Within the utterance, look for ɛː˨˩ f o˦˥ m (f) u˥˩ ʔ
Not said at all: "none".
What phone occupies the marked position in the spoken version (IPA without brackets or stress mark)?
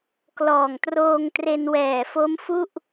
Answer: f